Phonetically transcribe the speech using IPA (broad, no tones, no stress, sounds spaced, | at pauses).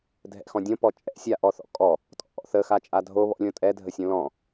dʱ ɛ̰ x ɔ̃ dʲ õ p ɔ t͡ʃʼ ɛ̰ sʲ a ʔ ɔ θ ɔ̰ kʼ ɔ | tʼ ɔ̰ ʔ ɔ̰ θ ə x a t͡ʃʼ a dʱ o β ɔ̰ lʲ õ tʼ ɛ dʱ ə sʲ õ l ɔ̃